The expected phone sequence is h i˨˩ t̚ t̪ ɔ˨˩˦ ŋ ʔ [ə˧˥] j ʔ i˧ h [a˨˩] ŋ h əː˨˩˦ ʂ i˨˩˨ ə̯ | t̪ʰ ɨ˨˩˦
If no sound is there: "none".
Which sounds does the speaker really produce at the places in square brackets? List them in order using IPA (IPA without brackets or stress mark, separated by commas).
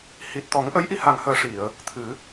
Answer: ə˧˥, a˨˩